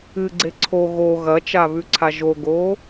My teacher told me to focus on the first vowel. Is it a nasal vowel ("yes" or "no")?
no